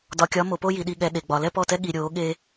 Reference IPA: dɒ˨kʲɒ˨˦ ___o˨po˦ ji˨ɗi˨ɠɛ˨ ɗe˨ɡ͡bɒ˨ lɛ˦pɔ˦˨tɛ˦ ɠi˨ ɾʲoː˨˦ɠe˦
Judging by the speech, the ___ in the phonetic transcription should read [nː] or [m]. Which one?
m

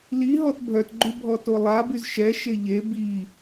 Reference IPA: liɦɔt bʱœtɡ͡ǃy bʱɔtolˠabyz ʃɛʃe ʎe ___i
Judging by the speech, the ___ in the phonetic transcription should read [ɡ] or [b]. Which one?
b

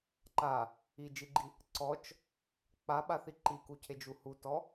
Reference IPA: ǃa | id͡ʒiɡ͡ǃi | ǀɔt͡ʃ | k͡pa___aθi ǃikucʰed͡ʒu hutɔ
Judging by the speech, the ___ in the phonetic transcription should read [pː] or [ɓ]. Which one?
ɓ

